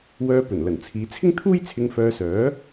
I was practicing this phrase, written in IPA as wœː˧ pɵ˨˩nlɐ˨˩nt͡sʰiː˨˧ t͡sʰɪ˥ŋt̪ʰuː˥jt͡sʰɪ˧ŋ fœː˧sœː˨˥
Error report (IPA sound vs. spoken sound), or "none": none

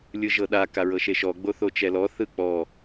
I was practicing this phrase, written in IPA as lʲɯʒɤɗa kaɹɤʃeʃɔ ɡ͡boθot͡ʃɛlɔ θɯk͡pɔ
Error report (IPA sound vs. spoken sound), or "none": none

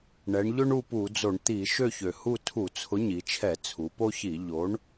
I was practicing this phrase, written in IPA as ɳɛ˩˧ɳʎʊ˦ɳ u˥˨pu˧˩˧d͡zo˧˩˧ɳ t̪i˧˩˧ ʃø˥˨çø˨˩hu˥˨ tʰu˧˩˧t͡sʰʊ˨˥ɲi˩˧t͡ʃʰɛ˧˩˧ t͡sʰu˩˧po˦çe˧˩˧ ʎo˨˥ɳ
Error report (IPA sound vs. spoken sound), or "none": e˧˩˧ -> i˧˩˧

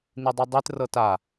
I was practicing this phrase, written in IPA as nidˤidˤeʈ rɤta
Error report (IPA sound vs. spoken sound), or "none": ʈ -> t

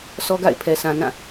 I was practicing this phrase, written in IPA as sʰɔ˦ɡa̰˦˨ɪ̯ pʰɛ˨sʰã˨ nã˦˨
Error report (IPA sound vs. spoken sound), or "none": none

